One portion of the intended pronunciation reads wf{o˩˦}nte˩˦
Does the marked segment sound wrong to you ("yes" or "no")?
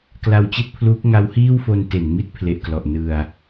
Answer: yes